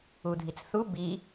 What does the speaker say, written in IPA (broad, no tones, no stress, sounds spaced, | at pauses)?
u dʱ i t͡s θ u b i